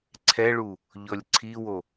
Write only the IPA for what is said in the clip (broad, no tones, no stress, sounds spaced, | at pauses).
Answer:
ǀʰ ɛ ɭ u | ʎ ɔ lʲ ǀʰ i w o